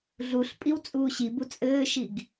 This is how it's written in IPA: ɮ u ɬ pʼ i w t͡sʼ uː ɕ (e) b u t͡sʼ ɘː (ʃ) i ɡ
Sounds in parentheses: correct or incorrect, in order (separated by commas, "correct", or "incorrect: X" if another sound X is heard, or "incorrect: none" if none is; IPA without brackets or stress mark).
incorrect: i, correct